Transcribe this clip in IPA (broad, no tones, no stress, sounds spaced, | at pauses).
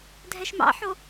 dʱ ɛ ʃ m ɑ̰ ħ o